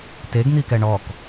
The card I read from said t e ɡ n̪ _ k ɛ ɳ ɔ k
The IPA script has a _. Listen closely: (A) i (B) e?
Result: A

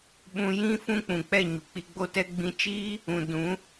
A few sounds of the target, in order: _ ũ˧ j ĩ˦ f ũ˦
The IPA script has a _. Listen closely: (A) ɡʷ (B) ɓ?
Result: B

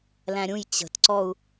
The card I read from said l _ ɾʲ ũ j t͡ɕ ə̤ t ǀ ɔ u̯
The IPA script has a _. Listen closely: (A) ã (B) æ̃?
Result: B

